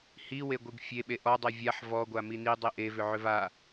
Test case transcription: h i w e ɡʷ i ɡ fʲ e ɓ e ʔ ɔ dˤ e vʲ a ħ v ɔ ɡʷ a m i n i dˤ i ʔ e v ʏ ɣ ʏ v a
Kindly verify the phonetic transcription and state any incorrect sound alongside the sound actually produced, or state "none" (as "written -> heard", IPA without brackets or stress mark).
ɣ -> ʕ